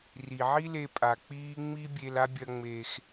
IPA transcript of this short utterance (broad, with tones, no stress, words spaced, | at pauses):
ri˩ʕi˥le˧ pʼa˩k͡piː˥ ŋ͡mi˥bʲe˧la˥ bʲɐ˥ŋ͡meː˧x